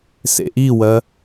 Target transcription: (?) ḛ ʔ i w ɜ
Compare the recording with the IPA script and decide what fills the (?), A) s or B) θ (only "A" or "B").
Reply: A